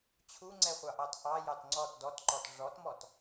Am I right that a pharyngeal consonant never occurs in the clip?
yes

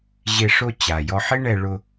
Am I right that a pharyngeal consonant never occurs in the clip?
no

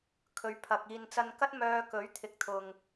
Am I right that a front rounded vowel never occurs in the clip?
no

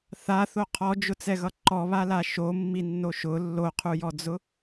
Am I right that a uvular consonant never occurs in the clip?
no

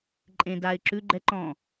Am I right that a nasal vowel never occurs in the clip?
no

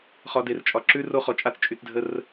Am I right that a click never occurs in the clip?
no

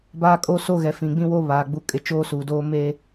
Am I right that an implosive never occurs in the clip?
yes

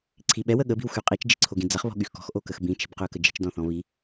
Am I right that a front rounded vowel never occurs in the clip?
no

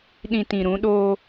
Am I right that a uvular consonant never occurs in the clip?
yes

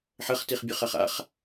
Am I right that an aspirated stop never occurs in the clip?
yes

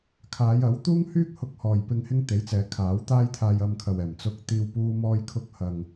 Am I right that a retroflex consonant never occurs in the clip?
yes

